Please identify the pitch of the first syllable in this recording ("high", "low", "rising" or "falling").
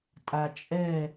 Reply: low